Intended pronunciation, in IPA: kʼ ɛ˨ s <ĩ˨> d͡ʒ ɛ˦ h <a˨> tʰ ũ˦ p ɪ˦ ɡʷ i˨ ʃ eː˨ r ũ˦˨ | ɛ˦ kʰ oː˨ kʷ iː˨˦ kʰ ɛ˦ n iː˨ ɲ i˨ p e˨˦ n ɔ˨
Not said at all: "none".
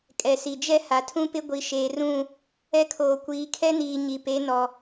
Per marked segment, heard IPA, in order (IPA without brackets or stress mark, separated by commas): i˨, a˨